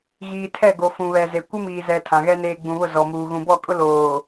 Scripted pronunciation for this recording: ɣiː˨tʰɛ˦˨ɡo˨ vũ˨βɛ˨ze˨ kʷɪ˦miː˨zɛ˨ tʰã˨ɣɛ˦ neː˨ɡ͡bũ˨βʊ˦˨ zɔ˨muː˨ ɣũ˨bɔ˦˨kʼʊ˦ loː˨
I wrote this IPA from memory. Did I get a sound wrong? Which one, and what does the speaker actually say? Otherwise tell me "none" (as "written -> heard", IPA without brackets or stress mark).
v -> f